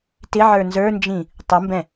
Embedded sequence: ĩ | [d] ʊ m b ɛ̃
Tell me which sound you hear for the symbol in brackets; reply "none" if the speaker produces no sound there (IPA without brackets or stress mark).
tˤ